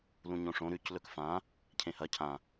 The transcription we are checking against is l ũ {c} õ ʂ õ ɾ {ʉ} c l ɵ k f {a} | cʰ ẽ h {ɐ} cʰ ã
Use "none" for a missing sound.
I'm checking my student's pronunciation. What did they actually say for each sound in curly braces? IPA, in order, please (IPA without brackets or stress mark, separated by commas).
ɲ, ʉ, ã, ɐ